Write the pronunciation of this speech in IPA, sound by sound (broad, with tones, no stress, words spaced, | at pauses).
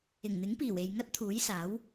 ɪ˨˩ŋn̪ɪ˨˥ŋpiː˨˩w e˨jŋɐ˥t̚t̪ʰuː˨˥jsaː˨˥w